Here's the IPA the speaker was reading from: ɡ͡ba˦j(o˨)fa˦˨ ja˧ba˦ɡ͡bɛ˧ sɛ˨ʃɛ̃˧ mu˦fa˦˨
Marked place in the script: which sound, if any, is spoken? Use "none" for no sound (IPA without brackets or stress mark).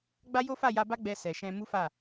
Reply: o˦